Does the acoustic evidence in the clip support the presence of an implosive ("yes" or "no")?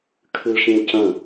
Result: no